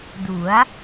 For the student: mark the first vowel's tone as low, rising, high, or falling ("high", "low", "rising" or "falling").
rising